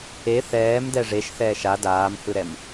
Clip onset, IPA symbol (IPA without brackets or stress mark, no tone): e